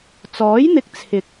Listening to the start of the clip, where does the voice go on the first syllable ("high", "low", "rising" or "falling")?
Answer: rising